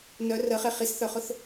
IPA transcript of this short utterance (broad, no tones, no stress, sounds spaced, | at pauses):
n œ r ə χ e χ i s θ œ χ ʊ θ